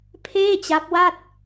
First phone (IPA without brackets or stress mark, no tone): pʰ